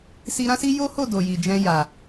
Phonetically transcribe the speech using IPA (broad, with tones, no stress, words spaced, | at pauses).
si˧ ɾã˦si˦ jo˦ho˦˨ do˨ji˨d͡ʒɛ̃˧ ja˨